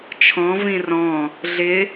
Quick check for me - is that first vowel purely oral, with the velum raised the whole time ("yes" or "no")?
no